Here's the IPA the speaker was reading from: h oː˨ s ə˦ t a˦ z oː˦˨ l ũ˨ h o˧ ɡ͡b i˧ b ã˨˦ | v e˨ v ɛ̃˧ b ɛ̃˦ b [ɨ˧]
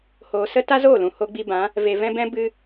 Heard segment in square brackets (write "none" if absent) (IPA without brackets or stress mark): ɨ˧